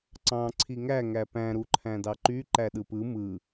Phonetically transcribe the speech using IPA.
ǀ ɑ̃ ǀʰ i ŋ æ ŋ æ p æ̃ ɾ u ǃʰ æ̃ d ɑ ǃ y ǃ æ ɗ ɯ p ɯ m ɯ

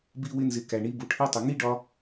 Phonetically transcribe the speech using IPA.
b i˧ w ɪ˧ n z ɪ˨ k æ˨ ɳ i˦ b u˨ ʈʰ i˦ tˤ ʊ˨ ŋ i˦ ɖ ɒ˧

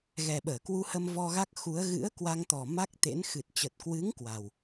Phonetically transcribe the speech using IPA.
ɣ ɛ˨˩ ɓ əː˧˩ k w u˧ h ə˧ m v ɔ˧ ɣ a˦˥ k̚ x u˨˦ ə̯ ɣ ɨ̰˧˥ ə̯ k w a˧ ŋ t̪ ɔ˨˩ m a˦˥ k̚ t̪ ḛ˧˥ n x ɨ˨˩ t̚ t͡ɕ ə˨˩ t̚ k w ɨ˨˦ ŋ k w a˨˩ w

